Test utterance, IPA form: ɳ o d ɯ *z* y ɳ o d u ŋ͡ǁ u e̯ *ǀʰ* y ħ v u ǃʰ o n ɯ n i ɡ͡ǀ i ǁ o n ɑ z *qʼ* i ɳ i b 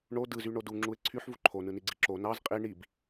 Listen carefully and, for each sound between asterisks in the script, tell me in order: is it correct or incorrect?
correct, correct, correct

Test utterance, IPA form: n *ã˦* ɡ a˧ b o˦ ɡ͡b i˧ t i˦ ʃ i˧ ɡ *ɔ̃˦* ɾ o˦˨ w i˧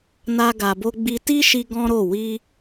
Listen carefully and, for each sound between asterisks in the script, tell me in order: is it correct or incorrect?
incorrect: a˦, correct

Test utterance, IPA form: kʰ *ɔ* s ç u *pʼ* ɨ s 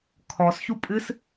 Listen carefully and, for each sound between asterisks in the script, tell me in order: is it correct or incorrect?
correct, correct

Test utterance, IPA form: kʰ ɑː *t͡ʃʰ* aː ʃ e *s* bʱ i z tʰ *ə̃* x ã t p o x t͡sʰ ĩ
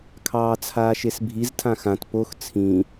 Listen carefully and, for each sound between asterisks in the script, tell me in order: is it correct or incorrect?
incorrect: t͡sʰ, correct, incorrect: ã

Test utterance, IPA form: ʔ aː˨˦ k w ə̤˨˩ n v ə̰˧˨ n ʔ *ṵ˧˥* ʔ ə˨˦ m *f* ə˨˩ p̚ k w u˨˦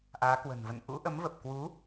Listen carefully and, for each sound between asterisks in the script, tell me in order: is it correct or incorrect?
correct, incorrect: v

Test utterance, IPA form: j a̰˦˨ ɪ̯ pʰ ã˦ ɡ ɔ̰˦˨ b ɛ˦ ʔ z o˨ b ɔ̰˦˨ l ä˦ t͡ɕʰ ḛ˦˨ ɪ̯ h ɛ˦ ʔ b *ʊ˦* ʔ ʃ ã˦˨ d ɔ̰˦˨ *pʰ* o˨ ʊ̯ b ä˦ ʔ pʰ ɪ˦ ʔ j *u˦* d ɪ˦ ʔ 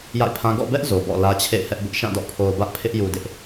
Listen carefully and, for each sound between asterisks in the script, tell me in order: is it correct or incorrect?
correct, correct, incorrect: u˨

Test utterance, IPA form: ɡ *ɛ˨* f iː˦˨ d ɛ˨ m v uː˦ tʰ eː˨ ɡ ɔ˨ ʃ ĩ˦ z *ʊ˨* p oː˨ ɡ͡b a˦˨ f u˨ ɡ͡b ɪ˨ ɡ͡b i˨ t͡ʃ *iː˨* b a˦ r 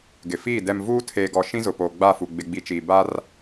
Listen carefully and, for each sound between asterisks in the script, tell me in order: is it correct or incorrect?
incorrect: ɪ˨, correct, correct

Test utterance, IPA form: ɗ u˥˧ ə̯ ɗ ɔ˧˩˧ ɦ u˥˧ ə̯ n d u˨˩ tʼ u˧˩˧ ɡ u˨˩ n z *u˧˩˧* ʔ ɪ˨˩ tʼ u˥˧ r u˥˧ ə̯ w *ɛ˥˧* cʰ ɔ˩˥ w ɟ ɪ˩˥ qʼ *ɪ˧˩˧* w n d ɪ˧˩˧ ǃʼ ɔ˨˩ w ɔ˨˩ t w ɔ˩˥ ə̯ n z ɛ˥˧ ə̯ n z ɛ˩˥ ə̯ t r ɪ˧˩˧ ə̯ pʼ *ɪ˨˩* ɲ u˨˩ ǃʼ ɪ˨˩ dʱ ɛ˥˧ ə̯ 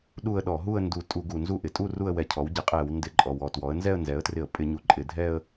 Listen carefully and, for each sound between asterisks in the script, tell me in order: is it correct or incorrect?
incorrect: u˥˧, incorrect: ɛ˧˩˧, incorrect: ɛ˧˩˧, incorrect: ɪ˧˩˧

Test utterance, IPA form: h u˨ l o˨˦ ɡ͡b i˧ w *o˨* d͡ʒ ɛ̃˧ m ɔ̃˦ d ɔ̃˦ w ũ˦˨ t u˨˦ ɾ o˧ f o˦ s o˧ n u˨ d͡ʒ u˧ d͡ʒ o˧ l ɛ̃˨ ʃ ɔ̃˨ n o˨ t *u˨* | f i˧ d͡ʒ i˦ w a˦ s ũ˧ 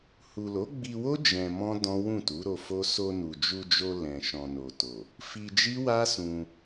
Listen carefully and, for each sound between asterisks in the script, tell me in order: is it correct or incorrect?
incorrect: o˦, incorrect: o˨

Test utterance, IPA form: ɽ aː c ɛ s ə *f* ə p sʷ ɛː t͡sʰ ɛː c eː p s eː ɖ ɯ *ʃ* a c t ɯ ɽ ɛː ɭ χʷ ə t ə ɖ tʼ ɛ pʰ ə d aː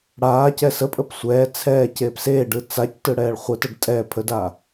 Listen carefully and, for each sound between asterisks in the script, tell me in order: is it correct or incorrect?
incorrect: pʼ, incorrect: t͡s

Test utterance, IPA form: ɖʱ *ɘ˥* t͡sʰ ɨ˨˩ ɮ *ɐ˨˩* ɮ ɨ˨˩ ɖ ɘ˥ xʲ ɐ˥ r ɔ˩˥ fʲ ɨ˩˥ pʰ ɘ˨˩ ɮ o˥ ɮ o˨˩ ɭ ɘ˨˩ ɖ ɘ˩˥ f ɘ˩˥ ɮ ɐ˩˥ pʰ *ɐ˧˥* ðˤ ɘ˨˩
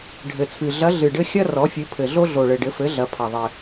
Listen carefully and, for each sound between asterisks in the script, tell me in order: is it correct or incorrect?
incorrect: ɘ˨˩, incorrect: ɐ˧˥, incorrect: ɐ˨˩

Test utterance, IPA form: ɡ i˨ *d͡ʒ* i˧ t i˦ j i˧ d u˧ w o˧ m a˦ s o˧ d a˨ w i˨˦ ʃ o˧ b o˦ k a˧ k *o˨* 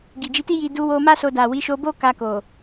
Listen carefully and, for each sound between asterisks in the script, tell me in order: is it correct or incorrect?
correct, correct

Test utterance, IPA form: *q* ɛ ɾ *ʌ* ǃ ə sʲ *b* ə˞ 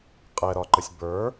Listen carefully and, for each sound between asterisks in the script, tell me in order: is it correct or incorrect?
incorrect: qʼ, incorrect: ɒ, correct

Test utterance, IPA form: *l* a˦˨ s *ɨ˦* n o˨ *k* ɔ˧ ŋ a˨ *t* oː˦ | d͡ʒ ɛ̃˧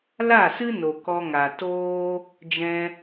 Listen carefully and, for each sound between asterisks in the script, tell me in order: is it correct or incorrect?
correct, correct, correct, correct

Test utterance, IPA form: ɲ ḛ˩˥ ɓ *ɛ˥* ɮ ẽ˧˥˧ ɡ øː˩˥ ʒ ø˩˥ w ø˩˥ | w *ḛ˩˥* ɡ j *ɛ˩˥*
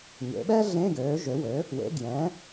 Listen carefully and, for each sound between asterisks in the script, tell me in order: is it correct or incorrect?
correct, correct, incorrect: ɛ̃˩˥

